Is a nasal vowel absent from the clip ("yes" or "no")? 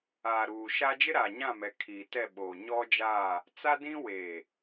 no